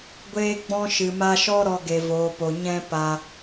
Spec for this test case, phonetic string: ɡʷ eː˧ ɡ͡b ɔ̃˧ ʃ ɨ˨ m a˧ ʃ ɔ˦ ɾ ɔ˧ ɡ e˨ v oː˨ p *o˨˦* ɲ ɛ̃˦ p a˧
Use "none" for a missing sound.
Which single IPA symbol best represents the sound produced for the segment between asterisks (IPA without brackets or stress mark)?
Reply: o˨